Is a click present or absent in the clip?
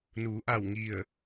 absent